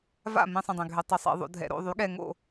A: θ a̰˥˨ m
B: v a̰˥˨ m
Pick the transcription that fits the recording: B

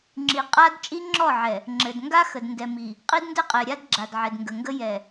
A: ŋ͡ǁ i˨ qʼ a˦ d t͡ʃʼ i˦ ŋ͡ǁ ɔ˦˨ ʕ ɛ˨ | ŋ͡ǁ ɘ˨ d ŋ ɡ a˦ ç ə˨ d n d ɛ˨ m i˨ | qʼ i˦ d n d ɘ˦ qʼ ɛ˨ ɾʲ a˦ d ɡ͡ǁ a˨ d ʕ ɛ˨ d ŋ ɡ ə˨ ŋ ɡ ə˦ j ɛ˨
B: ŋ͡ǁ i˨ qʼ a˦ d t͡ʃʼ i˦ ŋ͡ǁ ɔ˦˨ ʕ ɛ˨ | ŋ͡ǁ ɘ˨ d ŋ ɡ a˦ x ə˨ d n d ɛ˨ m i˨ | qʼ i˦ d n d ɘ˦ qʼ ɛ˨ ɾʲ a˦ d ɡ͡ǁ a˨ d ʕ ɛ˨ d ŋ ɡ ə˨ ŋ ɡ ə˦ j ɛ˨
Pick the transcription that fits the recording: B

